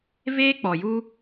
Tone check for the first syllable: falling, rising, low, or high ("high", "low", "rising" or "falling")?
high